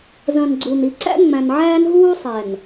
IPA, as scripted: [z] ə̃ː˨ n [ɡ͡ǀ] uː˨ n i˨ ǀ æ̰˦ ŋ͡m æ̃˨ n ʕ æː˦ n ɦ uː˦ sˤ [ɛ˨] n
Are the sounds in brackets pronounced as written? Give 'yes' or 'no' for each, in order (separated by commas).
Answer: yes, yes, yes